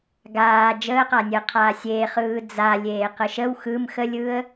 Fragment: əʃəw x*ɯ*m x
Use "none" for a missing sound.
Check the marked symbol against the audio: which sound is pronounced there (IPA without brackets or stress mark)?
ɯ